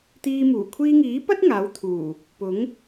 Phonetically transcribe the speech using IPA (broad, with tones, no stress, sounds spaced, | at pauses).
t̪ iː˧ m uː˨˩ kʷʰ iː˧ ŋ iː˨˥ p ɐ˥ t̚ ŋ aː˨˥ w t̪ʰ uː˨˩ | p ʊ˨˥ ŋ